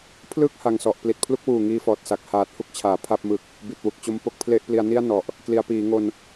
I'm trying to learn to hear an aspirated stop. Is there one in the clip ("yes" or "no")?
yes